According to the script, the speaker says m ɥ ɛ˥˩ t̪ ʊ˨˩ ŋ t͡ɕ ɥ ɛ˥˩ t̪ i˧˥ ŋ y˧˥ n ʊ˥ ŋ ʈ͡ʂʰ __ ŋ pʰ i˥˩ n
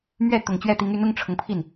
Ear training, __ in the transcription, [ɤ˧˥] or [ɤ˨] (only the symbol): ɤ˨